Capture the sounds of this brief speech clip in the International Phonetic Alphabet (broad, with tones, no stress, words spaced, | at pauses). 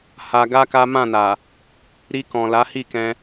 ha˧ɡa˦ka˦ mã˦˨na˨ | ɾi˧kɔ̃˨ la˨˦hi˦˨kɛ̃˧